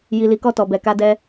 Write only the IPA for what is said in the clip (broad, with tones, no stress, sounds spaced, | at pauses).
j i˨ l i˨ k ɔ˧ t ɔ˨ b ɛ˨ k a˧ d ɛ˧